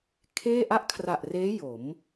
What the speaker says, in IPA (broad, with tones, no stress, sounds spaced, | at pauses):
kʰ eː˥˩ ʔ a˥˩ ʔ kʰ r a˨˩ ʔ r eː˦˥ j o˩˦ m